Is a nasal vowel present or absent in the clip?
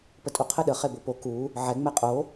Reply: absent